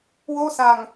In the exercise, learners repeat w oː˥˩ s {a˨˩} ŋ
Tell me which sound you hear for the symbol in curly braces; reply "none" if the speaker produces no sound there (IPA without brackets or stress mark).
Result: a˨˩